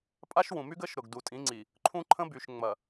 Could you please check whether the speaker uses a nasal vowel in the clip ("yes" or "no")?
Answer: yes